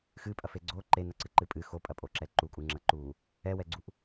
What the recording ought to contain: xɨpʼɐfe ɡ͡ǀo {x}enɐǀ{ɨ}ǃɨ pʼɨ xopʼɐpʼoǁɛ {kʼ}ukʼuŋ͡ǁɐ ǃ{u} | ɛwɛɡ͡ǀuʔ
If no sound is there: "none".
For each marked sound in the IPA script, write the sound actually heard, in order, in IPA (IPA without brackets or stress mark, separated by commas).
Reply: ǃ, ɨ, ǃ, u